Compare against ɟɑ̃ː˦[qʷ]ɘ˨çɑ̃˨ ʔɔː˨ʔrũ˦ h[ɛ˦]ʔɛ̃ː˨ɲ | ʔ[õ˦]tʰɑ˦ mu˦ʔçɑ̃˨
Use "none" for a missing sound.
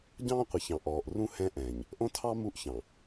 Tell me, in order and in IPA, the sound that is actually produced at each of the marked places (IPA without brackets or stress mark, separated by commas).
qʷ, ɛ̃˦, õ˦